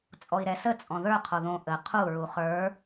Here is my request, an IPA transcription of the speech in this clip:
t͡sʼ ɔ i̯ ɾ ɛ s ə t͡sʼ ɔ̃ ð ə˞ qʰ o ð õ ʔ ə qʰ u ɹ u χ ə˞

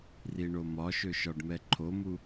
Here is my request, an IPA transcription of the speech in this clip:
r i ɳ o m ɒ ʃ ø ʃ ɒ ɖ m ɛ ǃʰ o m u

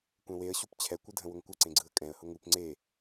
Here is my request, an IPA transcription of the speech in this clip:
kʷ ɛ̃ w e ə̯ ɕ u p t͡ɕʰ ɛ kʷ ɯ dʱ ə̃ w ʊ ŋ kʷ ə ǀ ẽ ɡ͡ǀ ɯ ə̯ kʼ ɛ̃ ə̯ h ʊ ŋ u p ŋ͡ǀ e

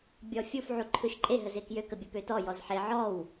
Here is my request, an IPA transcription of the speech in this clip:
bʲ ɔ fʲ u f ʕ u ǃʰ ɯ ʃ ǃʼ e ɦ ə z e k j ø k ə bʲ ə p ø t ɔ j ɔ z ħ e ʕ ɔ w

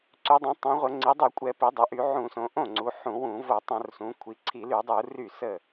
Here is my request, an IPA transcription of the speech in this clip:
ǀ y˩˧ dˤ õ˩˧ tˤ õ˩˧ ʁʷ ə˧˩˧ ŋ͡ǀ i˩˧ dˤ y˧˩˧ kʷʼ ɛ˧˩˧ p i˩˧ dˤ o˩˧ ʔ y˧˩˧ ʕ ũ˧˩˧ s õ˩˧ ʔ õ˥˩ ŋ͡ǀ u˩˧ ħ ũ˧˩˧ w ũ˧˩˧ v o˧˩˧ tˤ õ˧˩˧ r s ũ˩˧ kʷʰ i˩˧ ǀʰ i˧˩˧ l y˧˩˧ dˤ u˧˩˧ r y˥˩ s ə˥˩

